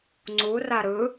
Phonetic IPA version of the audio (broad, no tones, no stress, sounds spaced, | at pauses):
ŋ͡ǀ u r a ɾ ɯ